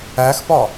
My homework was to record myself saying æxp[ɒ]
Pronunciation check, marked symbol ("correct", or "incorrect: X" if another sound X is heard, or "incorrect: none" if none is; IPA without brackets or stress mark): correct